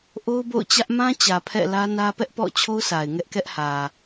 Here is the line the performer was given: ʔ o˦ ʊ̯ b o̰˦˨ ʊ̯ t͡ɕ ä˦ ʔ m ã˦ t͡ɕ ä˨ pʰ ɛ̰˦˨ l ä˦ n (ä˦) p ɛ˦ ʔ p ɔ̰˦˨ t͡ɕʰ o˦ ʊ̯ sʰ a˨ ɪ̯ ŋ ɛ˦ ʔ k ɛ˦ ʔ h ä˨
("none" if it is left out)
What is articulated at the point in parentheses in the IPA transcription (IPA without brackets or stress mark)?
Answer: ä˦